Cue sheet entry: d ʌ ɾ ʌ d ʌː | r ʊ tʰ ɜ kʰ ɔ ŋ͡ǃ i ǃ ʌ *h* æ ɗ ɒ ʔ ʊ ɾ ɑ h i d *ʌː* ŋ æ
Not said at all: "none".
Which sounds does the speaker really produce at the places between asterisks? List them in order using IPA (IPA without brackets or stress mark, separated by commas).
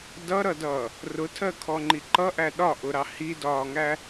ʔ, ɒː